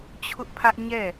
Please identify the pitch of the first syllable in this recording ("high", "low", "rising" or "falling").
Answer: high